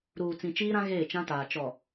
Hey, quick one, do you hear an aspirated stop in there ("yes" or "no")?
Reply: no